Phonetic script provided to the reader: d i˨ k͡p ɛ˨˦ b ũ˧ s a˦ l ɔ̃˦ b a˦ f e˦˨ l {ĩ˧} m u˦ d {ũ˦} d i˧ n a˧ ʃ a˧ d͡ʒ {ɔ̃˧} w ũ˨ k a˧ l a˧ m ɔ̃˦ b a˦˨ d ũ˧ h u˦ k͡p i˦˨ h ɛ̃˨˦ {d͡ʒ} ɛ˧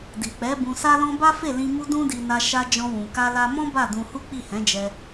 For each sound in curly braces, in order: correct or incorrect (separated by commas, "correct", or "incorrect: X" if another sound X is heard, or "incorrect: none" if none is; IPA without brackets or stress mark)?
correct, correct, correct, correct